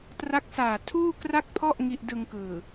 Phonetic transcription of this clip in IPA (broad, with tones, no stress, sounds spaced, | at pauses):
t r a˦˥ k̚ s aː˨˩ tʰ uː˥˩ k r a˥˩ k̚ pʰ ɔ˥˩ ʔ ŋ i˥˩ ʔ d ɯ˧ ŋ k ɯː˨˩